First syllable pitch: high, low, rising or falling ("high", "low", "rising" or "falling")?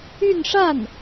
falling